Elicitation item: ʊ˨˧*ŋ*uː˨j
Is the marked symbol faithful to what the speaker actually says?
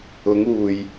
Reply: yes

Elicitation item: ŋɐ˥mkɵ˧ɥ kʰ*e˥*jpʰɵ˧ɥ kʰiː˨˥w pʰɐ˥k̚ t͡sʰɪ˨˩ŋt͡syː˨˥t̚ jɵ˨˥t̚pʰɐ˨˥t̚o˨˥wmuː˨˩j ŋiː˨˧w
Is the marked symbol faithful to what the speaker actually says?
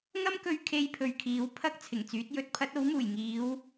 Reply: yes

